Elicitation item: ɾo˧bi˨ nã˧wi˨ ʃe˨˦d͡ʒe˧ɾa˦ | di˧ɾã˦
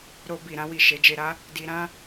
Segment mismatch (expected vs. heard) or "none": n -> ɾ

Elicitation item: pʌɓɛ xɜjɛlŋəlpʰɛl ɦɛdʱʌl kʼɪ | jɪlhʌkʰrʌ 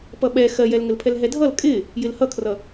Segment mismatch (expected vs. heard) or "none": none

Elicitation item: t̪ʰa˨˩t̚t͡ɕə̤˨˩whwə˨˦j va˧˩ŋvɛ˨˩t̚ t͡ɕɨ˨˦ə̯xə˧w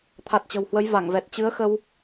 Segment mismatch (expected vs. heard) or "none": none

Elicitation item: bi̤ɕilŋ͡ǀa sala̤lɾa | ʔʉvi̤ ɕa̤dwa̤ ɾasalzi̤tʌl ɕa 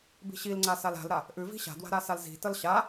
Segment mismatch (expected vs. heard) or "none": none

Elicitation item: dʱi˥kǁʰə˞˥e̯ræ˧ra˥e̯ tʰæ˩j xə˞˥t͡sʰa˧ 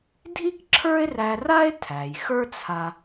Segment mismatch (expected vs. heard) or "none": none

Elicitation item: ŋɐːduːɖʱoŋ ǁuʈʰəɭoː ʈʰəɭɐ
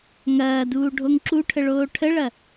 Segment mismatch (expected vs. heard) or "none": none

